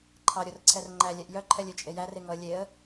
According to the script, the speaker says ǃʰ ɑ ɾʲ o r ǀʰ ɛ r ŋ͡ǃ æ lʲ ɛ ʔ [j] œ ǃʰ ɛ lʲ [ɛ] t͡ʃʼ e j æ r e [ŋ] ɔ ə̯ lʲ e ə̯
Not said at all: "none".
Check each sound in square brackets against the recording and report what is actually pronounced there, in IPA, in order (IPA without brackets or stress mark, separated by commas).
j, ø, ŋ